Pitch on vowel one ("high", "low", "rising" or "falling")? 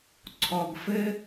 low